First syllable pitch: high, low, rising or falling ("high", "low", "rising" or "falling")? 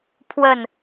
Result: low